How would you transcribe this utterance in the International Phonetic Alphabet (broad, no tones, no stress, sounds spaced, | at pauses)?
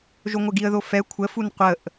ʒ o ŋʷ ə ɡ i ə̯ ð o f ɛ kʷʰ ə f u n qʷ ə ʔ